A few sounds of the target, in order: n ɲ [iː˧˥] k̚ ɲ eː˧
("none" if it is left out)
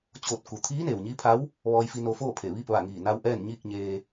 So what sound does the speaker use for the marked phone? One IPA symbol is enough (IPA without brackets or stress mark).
iː˥˨